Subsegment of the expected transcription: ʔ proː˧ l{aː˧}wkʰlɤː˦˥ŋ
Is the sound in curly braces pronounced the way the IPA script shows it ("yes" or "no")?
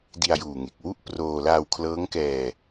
yes